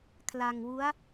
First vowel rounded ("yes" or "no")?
no